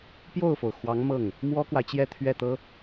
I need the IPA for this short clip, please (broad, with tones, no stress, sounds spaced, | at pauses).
p j o˥˩ ʊ̯ f o˩ ʊ̯ x w ɑ˧˥ ŋ m ɤ˥˩ ŋ | m w ɔ˥ k w a˨ ɪ̯ t͡ɕ j ɛ˥˧ t̪ʰ ɥ ɛ˥˩ t̪ ɤ˥